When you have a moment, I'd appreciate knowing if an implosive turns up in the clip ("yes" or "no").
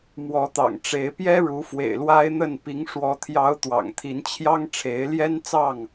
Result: no